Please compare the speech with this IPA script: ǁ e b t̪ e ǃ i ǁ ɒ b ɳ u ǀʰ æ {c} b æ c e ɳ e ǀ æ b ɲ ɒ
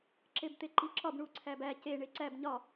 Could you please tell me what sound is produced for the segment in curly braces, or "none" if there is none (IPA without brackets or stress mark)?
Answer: none